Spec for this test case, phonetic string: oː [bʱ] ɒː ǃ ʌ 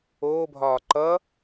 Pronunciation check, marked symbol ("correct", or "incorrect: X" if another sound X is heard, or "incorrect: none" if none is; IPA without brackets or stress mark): correct